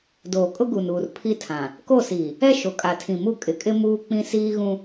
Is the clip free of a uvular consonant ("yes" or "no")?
yes